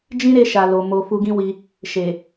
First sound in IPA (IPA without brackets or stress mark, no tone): d͡ʒ